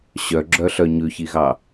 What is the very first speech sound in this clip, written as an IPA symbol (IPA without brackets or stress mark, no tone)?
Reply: ɕ